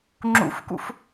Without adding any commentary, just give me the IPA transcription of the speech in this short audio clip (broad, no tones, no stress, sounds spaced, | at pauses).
ŋ͡ǁ ṵ f k ṵ f